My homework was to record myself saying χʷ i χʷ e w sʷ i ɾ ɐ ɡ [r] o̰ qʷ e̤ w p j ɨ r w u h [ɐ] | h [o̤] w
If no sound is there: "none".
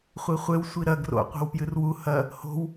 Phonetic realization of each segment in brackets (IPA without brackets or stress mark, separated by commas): r, ɐ, o̤